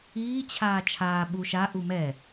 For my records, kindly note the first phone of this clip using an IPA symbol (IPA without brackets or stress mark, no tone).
iː